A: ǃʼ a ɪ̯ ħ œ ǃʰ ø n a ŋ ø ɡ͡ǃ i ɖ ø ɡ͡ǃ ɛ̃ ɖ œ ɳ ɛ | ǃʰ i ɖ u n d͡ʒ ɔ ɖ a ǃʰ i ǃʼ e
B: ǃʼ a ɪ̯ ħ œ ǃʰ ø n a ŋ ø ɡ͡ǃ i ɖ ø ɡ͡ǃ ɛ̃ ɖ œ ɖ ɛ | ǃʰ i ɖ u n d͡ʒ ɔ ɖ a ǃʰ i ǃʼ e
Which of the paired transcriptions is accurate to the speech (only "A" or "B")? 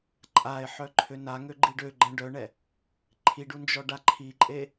A